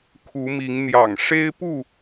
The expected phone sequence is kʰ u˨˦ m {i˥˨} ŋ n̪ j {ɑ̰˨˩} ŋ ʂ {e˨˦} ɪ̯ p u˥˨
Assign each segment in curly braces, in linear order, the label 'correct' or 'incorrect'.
incorrect, correct, incorrect

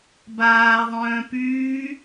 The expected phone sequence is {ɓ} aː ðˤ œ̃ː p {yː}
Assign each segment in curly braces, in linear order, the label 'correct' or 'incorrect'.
incorrect, correct

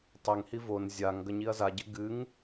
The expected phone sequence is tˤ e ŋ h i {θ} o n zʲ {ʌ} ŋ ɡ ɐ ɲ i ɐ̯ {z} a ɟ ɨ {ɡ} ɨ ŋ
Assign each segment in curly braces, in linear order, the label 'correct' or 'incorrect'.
incorrect, incorrect, correct, correct

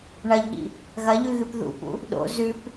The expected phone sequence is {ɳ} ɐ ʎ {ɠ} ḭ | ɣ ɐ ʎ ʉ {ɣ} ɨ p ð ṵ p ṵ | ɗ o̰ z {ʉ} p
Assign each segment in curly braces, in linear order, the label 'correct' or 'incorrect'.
correct, correct, correct, correct

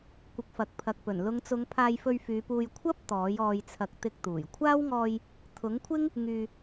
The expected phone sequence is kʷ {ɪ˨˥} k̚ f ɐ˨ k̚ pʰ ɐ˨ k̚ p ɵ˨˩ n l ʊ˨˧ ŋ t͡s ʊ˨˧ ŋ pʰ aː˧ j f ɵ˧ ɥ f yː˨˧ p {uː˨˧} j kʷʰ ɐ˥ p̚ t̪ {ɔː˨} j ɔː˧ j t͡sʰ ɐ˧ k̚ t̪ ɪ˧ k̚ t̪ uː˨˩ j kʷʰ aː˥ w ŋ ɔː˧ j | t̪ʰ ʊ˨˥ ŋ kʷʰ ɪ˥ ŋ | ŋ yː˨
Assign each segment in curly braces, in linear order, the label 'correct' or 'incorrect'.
correct, incorrect, incorrect

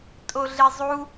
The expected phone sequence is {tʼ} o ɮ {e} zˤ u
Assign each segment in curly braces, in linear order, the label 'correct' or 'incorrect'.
correct, correct

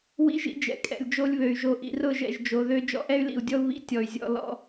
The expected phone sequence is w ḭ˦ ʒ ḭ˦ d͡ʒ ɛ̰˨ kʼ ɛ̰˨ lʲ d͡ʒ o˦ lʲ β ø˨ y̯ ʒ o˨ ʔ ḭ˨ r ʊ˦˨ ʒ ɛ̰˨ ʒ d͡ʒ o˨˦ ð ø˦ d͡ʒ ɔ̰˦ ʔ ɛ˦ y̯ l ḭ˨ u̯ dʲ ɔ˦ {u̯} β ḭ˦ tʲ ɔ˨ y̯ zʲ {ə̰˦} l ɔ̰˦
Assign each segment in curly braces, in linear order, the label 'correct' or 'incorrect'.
correct, incorrect

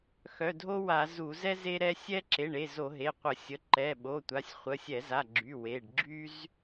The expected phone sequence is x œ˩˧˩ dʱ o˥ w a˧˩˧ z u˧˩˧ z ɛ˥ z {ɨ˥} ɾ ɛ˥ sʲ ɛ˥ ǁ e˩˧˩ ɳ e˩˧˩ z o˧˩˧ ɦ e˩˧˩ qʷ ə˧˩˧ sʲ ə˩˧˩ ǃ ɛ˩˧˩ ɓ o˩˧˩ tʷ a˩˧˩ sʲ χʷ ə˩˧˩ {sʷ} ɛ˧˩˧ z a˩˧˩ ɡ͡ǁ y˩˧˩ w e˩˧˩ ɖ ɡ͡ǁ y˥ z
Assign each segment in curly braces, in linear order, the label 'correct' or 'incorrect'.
incorrect, incorrect

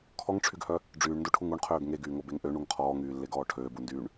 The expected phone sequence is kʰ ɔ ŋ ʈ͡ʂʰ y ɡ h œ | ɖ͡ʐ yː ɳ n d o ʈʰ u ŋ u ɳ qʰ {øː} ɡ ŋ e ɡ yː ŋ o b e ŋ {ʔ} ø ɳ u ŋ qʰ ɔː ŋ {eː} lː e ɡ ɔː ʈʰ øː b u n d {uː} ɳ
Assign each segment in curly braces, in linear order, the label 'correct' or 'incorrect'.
correct, correct, incorrect, incorrect

